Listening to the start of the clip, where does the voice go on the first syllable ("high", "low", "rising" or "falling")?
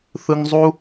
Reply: high